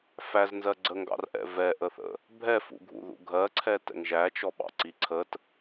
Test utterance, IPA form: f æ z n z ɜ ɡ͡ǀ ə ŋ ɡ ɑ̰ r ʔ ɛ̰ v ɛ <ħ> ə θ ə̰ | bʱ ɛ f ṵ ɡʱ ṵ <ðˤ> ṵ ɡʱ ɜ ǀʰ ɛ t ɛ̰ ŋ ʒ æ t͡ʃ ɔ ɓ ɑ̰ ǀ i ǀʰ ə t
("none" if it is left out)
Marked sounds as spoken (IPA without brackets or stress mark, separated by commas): ʔ, ð